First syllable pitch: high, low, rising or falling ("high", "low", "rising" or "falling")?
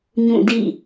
falling